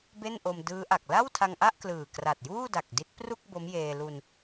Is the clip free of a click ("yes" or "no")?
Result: yes